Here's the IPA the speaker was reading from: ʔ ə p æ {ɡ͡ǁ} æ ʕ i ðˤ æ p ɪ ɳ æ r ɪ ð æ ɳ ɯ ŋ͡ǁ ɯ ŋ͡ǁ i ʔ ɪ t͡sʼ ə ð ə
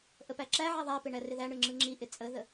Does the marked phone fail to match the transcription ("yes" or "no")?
yes